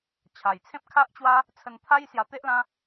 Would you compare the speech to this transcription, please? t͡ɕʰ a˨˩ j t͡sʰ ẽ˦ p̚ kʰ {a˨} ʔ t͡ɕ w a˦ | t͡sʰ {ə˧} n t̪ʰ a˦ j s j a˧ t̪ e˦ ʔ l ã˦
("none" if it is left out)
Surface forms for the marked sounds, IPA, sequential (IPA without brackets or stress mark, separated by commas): a˦, ə˧